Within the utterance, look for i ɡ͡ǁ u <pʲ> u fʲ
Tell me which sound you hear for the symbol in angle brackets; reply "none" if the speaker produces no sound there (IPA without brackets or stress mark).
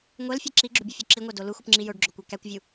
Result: bʲ